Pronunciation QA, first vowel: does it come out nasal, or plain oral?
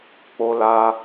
oral